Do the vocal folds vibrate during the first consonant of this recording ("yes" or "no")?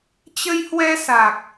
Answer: no